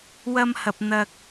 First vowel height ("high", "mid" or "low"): low